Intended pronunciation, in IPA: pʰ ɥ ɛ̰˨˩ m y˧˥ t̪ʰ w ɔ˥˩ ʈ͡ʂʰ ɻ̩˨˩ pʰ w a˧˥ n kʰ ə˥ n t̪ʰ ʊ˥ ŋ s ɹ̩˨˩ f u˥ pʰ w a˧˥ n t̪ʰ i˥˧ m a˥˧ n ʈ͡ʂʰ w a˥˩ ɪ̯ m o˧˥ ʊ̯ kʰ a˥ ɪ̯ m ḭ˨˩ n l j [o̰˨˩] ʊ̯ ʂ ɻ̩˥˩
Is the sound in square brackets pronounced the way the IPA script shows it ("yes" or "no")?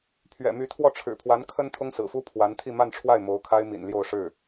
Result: no